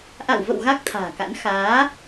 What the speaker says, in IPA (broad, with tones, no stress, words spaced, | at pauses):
ʔa̰˧˨wvə̰˧˨w ɣa˦˥k̚t̪ʰa̤ː˨˩ka̰˧˥n xaː˨˦